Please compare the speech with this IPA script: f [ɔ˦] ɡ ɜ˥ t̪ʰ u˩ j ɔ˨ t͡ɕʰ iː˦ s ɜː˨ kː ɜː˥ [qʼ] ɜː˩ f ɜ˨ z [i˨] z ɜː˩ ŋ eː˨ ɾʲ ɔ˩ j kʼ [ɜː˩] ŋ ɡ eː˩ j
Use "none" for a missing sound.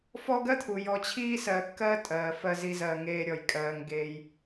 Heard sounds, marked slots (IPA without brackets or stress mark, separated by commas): ɔ˦, tʼ, i˨, ɜː˩